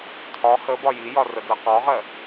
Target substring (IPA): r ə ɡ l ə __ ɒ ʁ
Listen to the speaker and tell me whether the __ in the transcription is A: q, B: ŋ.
A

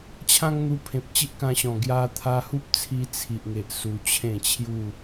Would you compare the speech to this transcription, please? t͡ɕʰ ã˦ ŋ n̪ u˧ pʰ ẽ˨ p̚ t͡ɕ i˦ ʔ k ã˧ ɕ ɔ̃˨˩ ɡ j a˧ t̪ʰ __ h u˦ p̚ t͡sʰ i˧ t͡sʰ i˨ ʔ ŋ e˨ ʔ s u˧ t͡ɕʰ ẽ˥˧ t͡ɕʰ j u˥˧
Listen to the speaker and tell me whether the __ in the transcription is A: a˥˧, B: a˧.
B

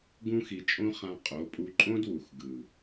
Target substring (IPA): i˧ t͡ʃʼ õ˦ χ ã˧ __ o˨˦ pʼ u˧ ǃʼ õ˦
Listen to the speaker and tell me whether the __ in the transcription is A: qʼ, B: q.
A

